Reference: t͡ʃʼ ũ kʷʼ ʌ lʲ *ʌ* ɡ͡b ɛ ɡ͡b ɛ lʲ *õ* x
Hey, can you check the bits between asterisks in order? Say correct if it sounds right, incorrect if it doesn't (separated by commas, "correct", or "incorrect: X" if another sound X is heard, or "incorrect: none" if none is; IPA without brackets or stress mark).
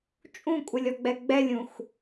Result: incorrect: ɔ, incorrect: ũ